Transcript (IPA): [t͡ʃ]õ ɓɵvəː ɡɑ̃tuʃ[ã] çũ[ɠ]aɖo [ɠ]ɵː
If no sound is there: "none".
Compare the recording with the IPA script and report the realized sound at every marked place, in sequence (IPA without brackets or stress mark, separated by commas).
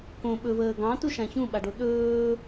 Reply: k, ã, ɓ, ɗ